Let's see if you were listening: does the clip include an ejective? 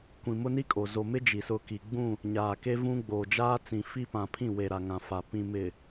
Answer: yes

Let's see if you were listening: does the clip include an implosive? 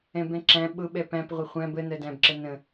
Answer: yes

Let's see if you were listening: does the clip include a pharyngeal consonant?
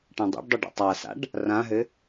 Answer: no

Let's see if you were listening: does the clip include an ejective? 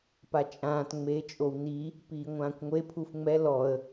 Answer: yes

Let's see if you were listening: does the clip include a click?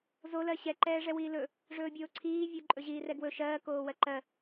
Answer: yes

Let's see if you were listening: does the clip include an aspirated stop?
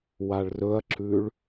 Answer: no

